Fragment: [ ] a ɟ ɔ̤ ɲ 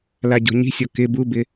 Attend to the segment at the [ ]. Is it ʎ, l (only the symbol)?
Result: l